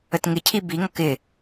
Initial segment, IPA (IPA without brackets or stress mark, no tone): ə